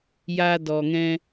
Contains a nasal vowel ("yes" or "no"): yes